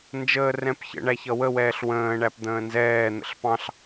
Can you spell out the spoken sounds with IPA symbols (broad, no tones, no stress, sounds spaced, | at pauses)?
n d͡ʒ əː r ɛ̃ p ç ə̰ ɳ æ ç ʌ w ə w ɛː ɬ w ə̃ː ɳ æ p d̪ ə̃ː n z ɛː n̪ ə̰ ɬ p ɑ̃ ɬ